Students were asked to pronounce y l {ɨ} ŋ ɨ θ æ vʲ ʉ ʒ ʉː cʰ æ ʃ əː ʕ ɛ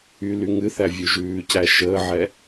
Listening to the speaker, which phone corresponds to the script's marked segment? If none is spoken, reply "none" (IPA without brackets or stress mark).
y